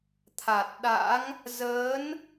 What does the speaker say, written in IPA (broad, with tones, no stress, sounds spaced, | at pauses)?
t̪ʰ aː˨˩ t̚ ɗ a̰˧˥ ŋ | z əː˨˦ n